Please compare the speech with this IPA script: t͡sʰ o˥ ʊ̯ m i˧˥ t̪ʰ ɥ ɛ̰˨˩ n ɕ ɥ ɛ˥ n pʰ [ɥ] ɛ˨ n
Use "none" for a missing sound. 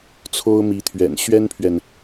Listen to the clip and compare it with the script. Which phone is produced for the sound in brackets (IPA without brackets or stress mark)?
ɥ